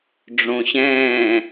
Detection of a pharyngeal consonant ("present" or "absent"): absent